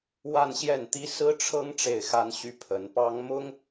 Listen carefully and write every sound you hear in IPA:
wa˥˧nɕjɛ˥˩nt̪i˥ sɹ̩˥ʈ͡ʂʰɤ˥ŋ ʈ͡ʂe˥˩ɪ̯xa˥nɕy˥ pʰə˧˥n pɑ˥ŋ mʊ˥ŋ

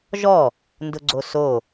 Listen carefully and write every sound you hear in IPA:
ʒɔ | ndʊɡ͡ǀoso

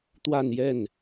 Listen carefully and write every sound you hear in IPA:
t̪wa˥˧njɛ˥˩n

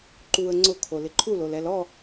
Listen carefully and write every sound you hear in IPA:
ǃuə̯ ŋ͡ǀʊkʰo lɪǃʰulolɛl ɔ

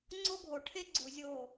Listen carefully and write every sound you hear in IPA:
ŋ͡ǀo˦ɡʱo˨ ʈʰe˦ ɡ͡ǀu˨ zʲo˦˨

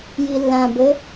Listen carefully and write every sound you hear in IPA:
jilːã bɘ

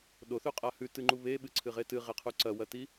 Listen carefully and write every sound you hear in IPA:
ɗoθʉqʼa hʉtɨŋ͡ǃu βeɓɨǀʰɨʁe tɨʁeqʰu ǀɐwɐti

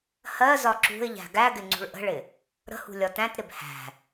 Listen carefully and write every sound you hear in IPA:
hɜzɒ ǁṳɪ̯ʎæ̤ ɡæɡɪ ŋ͡ǀṳɭʔə̤ɭɪ | ɾə̤hṳ lʲɒtæ̃tɾɪb hæ̤

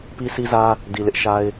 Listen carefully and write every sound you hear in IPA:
pi˦si˦zä˦ | di˨ lɪ˦ʔʃa˦ɪ̯

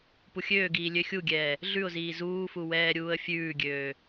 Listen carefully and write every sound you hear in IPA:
puxʲøːɡiː lʲøxʲuɡʲɛː | ɮʉʊ̯ziː zuːfu wɛːɾʲuːə̯fʲʉːɡʲøː

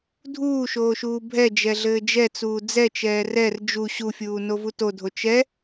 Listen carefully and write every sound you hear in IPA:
dʱuːʃoːʃuː bʱɛd͡ʒɛɮɘː d͡ʒɛt͡suː d͡zɛt͡ʃɛː rɛr d͡ʒu ɕufʲuːnovu todʱo t͡ʃɛ

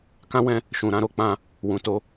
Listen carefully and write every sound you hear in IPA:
kã˦wɛ̃˦ | ʃũ˨ɾã˧ɾo˧ k͡pã˧ | wũ˨ to˨˦

